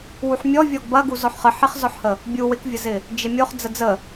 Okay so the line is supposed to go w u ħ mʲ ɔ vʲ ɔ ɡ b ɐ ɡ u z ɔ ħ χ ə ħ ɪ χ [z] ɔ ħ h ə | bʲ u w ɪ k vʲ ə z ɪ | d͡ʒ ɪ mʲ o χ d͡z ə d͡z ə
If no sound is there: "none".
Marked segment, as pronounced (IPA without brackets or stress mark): z